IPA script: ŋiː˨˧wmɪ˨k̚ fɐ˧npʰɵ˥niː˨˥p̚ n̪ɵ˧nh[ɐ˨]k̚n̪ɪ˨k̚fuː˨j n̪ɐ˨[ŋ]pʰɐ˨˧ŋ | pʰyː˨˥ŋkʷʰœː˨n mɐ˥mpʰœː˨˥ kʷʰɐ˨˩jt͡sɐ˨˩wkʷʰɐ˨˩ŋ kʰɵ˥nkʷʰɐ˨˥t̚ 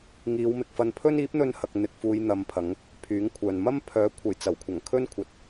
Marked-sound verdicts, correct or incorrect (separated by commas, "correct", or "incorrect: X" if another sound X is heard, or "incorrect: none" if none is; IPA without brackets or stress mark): correct, incorrect: m